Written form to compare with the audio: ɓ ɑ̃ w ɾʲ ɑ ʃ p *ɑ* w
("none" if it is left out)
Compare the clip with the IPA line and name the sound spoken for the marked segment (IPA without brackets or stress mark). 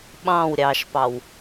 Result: ɑ